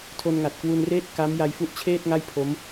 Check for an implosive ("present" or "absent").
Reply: absent